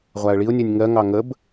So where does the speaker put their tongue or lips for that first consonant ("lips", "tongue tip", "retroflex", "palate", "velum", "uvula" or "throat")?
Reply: uvula